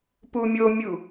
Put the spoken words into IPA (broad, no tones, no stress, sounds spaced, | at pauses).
p u mʲ o mʲ u